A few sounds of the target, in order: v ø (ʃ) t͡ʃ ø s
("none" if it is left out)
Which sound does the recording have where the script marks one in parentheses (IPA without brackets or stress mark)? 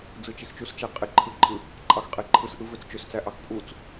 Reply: t͡s